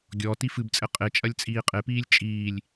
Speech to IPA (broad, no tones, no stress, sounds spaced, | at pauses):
ɡʲ ɔ t i f ɨ b t͡sʼ ɘ qʼ e t͡ʃʼ ɐ lʲ t͡sʼ iː qʼ e p iː lʲ t͡ʃʼ iː lʲ